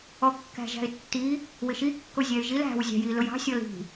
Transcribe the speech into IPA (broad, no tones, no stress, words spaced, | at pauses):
ɔkːæ̤ʒæ̤ɪ̯tːi | wɪʃi kːʊzʲæɪ̯ʒil æ̤w zʲɑ̤jilʊjɑ̤ sʲɔli̤